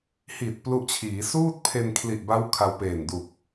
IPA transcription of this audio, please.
h i˨˩ t̚ p l u˦˥ ʔ t͡ɕʰ iː˩˦ s uː˥˩ t̚ pʰ e˧ n kʰ l i˨˩ ʔ b a˦˥ w kʰ a˧ w p eː˨˩ n d u˨˩ k̚

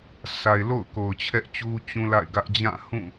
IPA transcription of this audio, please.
s a˨ ɪ̯ l o̰˦˨ ʊ̯ k o˨ ʊ̯ t͡ɕʰ ɛ˦ ʔ t͡ɕ u˦ t͡ɕ ũ˦ l a̰˦˨ ɪ̯ ɡ ä˦ ʔ d͡ʑ ã˦˨ h ũ˦˨

